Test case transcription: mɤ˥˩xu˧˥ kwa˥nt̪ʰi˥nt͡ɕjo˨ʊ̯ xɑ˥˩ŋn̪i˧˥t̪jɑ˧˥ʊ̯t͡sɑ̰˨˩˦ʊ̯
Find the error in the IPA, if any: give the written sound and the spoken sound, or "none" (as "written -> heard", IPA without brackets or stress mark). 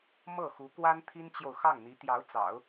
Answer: none